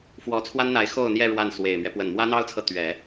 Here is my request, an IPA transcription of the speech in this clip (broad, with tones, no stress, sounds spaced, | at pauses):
f w ɔ˧˥ t͡sʰ w a˥ n n̪ a˧˥ ɪ̯ x o˥˧ ʊ̯ n̪ j ɛ˥˧ ɻ w a˥˩ n s w e˨˩ ɪ̯ m ɥ ɛ˦ p w ə˨˩ n m w ä˥ n̪ ɑ˥ ʊ̯ t͡sʰ ɤ˨ t̪ ɥ ɛ˨˩˦